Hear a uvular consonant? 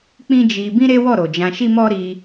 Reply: no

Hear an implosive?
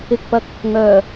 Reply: no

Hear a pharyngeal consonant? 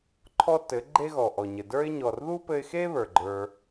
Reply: no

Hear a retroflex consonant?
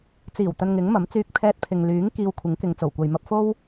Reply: no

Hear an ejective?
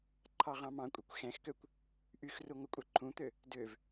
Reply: yes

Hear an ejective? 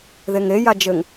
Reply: no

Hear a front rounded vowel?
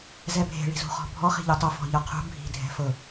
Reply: no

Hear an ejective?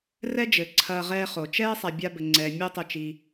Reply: no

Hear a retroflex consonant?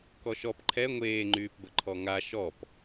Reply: no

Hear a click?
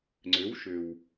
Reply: yes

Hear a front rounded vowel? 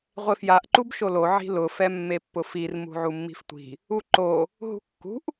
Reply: no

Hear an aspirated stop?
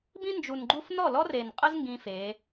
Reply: no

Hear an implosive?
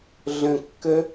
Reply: no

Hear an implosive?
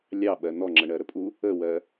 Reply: yes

